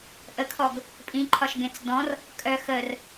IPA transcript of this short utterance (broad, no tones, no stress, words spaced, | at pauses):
ʔəkʰɔɡ | pʼĩǃʰɒʃɡẽt͡s dɔ̃r | kʼœ xər